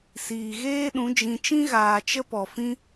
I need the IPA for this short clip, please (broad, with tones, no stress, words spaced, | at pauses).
siː˨ɣeː˦ ɗũ˨˦d͡ʒĩ˧ t͡ʃĩ˦ɣaː˨ t͡ʃə˦pɔ˨fĩ˦